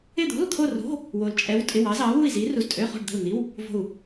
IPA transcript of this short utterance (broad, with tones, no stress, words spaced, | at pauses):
ɪ˥˧d̪o̤˧˥˧l t̪ʰo˥˧ro̤˧˥˧ | wo˧lt͡ʃʼɛ˧˥w tʼɪ˧˥˧wɑ˧˥zɑ˧˥ wu˥˧i̯zi˧˥ru˧z tʼø˧˥˧χo̤˥˧ɖ d̪ə̤˥˧l n̪i˧˥˧w | vo̤˥˧u̯